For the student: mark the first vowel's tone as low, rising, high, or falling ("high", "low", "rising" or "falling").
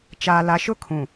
low